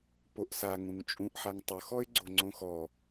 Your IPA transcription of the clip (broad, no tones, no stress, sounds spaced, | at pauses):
p o ʔ s a ŋ ũ ŋ t͡ʃʼ ũ ʔ ħ a ŋ tˤ ʊ x ɔ ɪ̯ ɡ͡ǀ o ŋ͡ǀ õ x ɔ